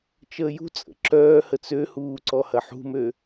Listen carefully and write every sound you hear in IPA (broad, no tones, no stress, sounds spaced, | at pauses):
t͡ʃ əː j ṳ t͡sʼ ə̰ ǁ œː h ə t͡s ø h uː ǀ ɔ h ɐ ħ ṳ m ø